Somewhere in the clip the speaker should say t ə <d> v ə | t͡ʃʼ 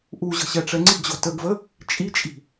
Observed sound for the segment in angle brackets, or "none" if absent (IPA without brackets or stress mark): ɡ